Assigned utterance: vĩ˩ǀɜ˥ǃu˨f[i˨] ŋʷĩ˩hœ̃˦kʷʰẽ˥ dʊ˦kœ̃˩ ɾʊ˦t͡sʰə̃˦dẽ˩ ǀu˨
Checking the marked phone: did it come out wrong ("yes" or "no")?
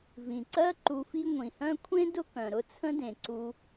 yes